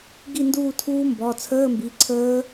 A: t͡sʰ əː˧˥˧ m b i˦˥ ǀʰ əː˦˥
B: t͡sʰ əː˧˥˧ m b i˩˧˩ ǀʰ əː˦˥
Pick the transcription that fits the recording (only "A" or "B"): B